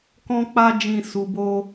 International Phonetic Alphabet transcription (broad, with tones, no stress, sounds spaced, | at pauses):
k ɔ̃˧ k͡p a˧ d͡ʒ ĩ˨ s u˨ b o˧